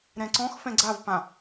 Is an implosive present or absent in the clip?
absent